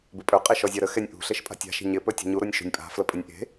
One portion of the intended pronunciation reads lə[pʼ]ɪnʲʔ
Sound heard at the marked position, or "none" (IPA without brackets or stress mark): pʼ